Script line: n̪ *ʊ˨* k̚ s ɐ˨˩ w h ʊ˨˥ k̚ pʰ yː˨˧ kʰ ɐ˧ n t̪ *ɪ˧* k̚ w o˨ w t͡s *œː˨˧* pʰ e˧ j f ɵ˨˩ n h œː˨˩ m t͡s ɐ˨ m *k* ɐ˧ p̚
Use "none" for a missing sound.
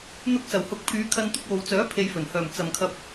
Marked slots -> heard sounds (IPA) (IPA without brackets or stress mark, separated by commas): ʊ˧, ɪ˧, œː˨˥, kʰ